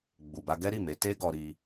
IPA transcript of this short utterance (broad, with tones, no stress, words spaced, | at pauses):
ɡ͡bu˨ba˧ ɡɛ˦ɾi˦˨me˨˦ te˦ ɡɔ˧ɾi˧